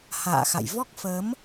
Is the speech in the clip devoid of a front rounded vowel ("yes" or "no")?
yes